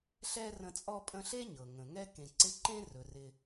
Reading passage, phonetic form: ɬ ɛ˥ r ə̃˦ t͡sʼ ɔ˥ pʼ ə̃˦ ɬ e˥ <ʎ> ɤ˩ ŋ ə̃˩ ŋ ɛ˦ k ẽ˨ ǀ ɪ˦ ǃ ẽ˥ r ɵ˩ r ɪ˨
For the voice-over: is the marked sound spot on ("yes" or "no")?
no